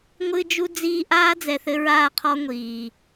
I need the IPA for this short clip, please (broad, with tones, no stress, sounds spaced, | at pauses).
ŋʷ ɨ˦ d͡ʒ u˦ d͡z iː˦ ʔ aː˦ d͡z ɛ˨ θ ɘ˦ ɹ aː˦˨ qʰ ɔ˦ ŋʷ iː˨